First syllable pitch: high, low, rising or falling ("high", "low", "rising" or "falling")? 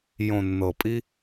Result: low